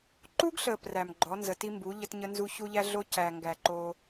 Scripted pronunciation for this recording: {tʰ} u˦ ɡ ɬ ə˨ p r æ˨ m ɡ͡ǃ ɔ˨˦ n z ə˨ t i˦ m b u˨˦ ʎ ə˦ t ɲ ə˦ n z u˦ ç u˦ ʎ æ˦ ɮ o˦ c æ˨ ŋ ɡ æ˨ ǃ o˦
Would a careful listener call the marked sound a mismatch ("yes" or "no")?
yes